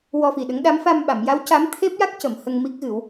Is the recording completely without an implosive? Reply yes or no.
no